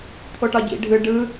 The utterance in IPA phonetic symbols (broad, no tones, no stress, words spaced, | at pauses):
t̪ʰoʈɒɟḭ ɖʱɯ ɖɯ